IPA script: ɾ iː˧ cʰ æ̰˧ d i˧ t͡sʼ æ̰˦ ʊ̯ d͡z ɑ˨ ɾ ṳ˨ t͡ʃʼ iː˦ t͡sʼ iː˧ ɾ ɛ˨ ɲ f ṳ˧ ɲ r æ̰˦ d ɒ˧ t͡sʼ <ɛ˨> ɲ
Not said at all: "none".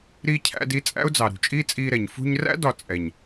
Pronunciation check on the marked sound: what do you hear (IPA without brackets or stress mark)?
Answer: ɛ˨